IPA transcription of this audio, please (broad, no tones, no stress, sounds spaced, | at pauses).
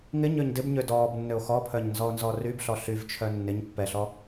ŋ ɪ ɲ ø ɲ d ɪ b ɲ ø d ɔː b nː ø o̯ x ɔ pʰ œ ɲ n z ɔ o̯ n z ɔ r y b ɬ ɔ ɬ y v t͡ʃʰ œ nː ɪ ɲ pː ɛ ɬ ɔ